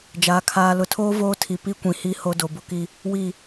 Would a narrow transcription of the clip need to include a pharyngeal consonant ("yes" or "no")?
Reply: no